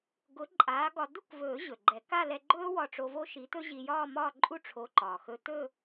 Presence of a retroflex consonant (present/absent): present